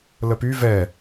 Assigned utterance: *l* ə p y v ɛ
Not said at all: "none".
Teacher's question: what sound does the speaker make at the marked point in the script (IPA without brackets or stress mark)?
l